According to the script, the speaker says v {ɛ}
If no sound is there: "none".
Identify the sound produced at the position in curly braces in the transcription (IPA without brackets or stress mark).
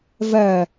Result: ɜ